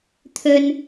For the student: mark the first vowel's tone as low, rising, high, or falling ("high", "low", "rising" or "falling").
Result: high